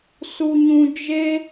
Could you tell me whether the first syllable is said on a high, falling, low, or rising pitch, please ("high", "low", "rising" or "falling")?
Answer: high